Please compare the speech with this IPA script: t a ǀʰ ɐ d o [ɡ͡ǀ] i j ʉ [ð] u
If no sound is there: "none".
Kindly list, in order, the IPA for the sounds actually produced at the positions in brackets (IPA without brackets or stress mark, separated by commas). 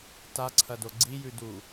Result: ɡ͡ǀ, d